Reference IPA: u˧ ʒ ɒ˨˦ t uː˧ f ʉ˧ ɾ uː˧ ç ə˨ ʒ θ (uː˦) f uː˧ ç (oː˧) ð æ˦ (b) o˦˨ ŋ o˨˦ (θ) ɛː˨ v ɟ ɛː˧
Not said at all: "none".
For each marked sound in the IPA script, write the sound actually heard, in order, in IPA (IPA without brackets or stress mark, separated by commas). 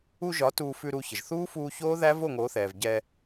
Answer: uː˦, oː˦, v, θ